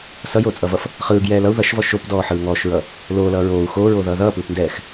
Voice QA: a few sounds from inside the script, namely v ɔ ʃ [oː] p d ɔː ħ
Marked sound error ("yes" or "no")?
yes